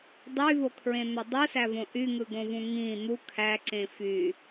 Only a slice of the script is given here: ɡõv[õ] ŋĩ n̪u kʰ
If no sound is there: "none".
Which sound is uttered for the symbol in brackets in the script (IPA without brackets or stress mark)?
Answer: ũ